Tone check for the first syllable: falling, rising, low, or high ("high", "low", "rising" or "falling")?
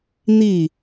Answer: falling